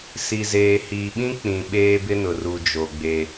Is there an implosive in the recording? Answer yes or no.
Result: yes